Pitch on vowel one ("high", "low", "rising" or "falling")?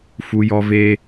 high